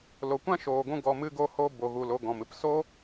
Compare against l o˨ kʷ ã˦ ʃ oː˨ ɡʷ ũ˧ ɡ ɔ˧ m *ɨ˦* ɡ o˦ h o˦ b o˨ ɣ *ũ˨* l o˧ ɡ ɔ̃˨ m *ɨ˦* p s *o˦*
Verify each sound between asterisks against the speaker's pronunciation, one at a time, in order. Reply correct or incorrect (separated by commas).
correct, incorrect, correct, correct